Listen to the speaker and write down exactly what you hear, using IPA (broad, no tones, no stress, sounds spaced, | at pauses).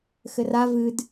x ɘ r a v ɨ d